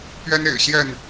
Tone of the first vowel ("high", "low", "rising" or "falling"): high